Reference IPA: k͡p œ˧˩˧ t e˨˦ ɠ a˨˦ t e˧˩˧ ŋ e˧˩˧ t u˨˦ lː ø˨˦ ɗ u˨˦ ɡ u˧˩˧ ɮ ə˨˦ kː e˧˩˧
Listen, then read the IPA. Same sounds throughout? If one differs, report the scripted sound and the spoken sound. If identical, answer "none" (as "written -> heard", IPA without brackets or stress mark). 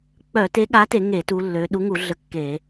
ɡ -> ŋ